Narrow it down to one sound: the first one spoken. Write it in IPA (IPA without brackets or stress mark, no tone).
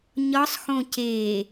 ɲ